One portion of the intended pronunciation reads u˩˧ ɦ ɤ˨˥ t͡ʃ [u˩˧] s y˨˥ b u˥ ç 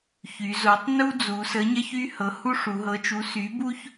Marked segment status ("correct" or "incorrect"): incorrect